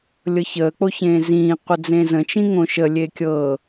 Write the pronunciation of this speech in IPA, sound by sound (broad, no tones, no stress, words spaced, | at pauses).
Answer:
lʲɤçəː k͡poçẽːzĩː qʷəd͡zẽzə̃ t͡ʃĩŋõʃə lʲekʲɤ